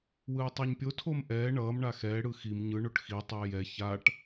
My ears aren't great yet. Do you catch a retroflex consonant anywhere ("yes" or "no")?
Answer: yes